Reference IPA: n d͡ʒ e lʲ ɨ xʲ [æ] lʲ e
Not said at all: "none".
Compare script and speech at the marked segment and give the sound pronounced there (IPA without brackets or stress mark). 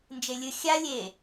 a